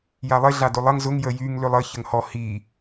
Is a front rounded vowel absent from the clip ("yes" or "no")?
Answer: no